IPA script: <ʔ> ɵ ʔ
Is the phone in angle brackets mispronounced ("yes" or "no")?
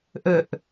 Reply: no